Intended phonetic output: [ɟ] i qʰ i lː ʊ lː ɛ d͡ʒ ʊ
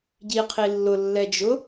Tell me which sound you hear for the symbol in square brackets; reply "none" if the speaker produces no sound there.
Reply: ɟ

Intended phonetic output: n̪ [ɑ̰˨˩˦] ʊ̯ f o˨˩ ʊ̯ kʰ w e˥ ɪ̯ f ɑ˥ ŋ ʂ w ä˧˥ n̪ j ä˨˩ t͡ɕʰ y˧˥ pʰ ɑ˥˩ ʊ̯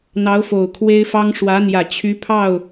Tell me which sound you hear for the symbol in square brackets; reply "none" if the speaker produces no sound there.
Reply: ɑ˧˥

